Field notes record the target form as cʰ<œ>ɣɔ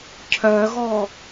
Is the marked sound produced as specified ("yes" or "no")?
yes